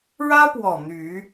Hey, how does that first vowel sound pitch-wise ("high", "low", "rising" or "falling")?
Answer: high